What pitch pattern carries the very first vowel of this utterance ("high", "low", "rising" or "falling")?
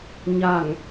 low